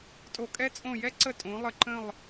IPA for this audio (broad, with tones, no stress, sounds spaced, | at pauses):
tʼ o˧˩˧ kʼ ɛ˧˥ t͡sʼ õ˧˩ j ɛ˧˥ ǀ ə˧˩ tʼ õ˩˧ lˠ ə˧˩ ǃ ə̃˧˩ lˠ